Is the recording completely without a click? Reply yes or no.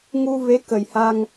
yes